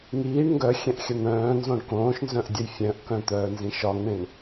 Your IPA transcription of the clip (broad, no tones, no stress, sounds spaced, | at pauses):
ŋ iː ɳ ŋ ɡ œ xʲ ɛ̃ ʔ xʲ ɐ n̪ œ̃ː n z õ ɳ k õː ʃ n z œ̃ ʔ dʲ ɐ j fʲ œ̃ ʔ k œ̃ t̪ œː n z ĩ ʃ ɒ ŋ ɳ ẽ ɳ